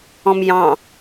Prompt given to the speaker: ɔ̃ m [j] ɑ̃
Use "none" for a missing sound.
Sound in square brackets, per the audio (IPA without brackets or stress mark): j